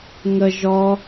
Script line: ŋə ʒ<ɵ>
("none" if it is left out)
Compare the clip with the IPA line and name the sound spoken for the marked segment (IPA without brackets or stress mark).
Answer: ɔ